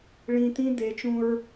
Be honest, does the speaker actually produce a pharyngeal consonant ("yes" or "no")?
no